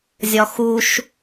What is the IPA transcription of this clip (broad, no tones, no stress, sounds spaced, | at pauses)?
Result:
zʲ ɒ x u ʃ